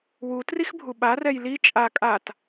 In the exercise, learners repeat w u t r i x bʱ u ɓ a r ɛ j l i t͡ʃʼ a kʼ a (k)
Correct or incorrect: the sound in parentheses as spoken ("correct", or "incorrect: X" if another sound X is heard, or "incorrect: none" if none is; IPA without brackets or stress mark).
incorrect: t